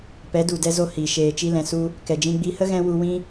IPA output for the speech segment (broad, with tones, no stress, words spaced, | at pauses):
pɛ˨˦du˨dɛ˧zo˧ hi˨ ʃeː˨t͡ʃi˧lɛ̃˨ su˧ | kɛ˨d͡ʒĩ˧ ɡ͡bi˧hə˦ ɣɛ̃˦ wu˧wĩ˦